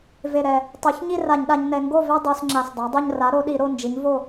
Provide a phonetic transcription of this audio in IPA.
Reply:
v e˨˩ ɾ ɛ˨˩ | tˤ u˩˧ ç ɲ i˥˨ r a˧˩˧ ɲ ɗ a˩˧ ɲ n ɛ˩˧ ŋ ɡ o˥˨ v ɛ˦ dˤ o˩˧ s ŋ͡ǁ a˨˩ s dˤ a˩˥ dˤ u˥˨ ɲ r a˩˥ ɾ o˩˧ ɗ i˧˩˧ ɾ o˥˨ n d͡ʒ i˩˥ ɲ v o˥˨

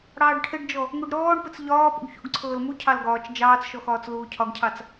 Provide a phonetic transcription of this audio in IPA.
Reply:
ɽ ɑː ɖ ʈʰ ɘ ɖ d͡ʒ ɔ | ŋ u ɖ ɾ ɔː ɳ p ɘ t͡s ʎ ɒː p ṵ ɡ ç ṵ ɡ ǀʰ ɤː l m u cʰ ɑ l ɡ ɒː t͡ʃ d͡ʒ ɑː t͡s ʃ ɔ x ɒː t͡s l uː cʰ ɒ ɡ cʰ ɑ t͡s

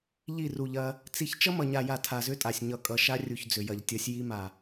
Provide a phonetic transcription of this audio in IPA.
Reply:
ʎ i˦˨ r u˨ ʎ ɐ˦ | t͡s i˦ ç t͡ʃ ʌ˦ m ʌ˨ ɲ a˨ j a˨ tʰ a˨ z ʏ˦ tʼ a˨ sʲ ɲ ʌ˨ kʼ ʌ˨ ʃ a˦ rʲ u˨ ç d͡z ʏ˨ j ɐ˨ ʎ tʲ ʌ˨˦ sʲ j i˦ m a˨

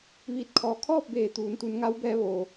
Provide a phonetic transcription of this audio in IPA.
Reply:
ʋ iː˧˩ t̚ kʰ ɔː˩ kʰ ɔː˥˨ p̚ b eː˧˩ t̪ uː˩˧ n t̪ u˩˧ n ŋ a˧˥ w b ɛː˧ ʋ oː˩

